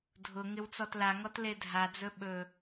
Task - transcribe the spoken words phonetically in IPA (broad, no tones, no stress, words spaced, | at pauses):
dʱʊ ŋɪwt͡sɔtlaŋɔt ledʱad͡zɵ ɓɵ